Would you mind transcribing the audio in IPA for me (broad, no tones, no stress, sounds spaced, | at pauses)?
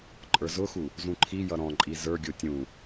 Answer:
ǃʼ ə˞ z ʊ x u | z ũ ǃʰ i j ʌ ɾ ɔ̃ ǃʼ i z ə˞ ɡʲ ʊ tʲ ũ